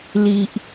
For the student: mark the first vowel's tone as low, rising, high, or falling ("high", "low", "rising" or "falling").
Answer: low